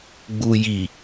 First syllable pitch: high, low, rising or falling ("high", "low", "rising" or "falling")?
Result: low